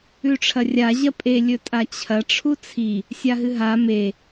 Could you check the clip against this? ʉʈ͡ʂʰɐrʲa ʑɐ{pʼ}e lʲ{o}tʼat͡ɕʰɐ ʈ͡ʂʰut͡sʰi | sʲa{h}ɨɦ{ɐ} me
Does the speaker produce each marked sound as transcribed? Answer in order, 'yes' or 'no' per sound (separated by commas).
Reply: yes, no, no, no